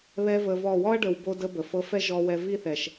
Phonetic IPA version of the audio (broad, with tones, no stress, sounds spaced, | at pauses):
β ɛ˦ v ə˧ v ɔ˦˨ w ɔ˦ ɐ̯ ɖ ə˨ w b o˧ d ə˦ b ə˨ f ɤ˧ f ɛ˦ ʒ ɔ˧ w ɛ˧ v i˦ θ ɛ˨ ʃ